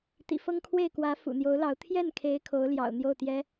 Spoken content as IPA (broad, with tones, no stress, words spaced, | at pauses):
t̪ḭ˨˩ fɤ˥ŋkʰwe˥˩ɪ̯kwä˧˥ fṵ˨˩n̪jo˧˥ʊ̯lɑ˧˥ʊ̯ t̪ʰjɛ˥˩nkʰe˧˥ɪ̯ kʰo˧˥ʊ̯ljɑ̰˨˩ʊ̯n̪jo˥˩ʊ̯ t̪jɛ˥